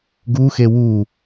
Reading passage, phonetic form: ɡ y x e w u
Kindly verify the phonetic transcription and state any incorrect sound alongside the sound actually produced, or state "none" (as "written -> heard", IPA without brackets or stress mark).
y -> u